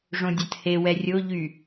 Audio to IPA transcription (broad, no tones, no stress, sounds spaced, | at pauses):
ʐ õ dʲ a t h e w ɛ rʲ o ʎ y